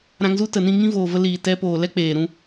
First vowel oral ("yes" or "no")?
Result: no